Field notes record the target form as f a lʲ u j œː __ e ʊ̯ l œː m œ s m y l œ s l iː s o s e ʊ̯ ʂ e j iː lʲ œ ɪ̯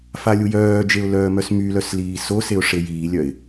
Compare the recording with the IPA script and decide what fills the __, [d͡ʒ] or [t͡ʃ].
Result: d͡ʒ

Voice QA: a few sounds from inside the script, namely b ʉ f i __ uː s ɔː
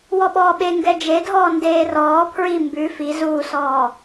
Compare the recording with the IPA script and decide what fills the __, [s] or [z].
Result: z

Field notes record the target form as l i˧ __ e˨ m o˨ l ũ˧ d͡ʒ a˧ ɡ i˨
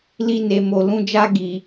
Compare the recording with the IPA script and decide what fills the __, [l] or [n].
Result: n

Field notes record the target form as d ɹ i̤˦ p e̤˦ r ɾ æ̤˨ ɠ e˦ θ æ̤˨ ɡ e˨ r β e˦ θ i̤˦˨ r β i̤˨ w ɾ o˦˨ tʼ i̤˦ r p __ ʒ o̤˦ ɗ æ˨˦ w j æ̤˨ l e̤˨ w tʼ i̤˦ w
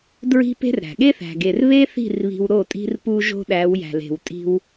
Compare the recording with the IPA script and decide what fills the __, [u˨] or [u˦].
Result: u˦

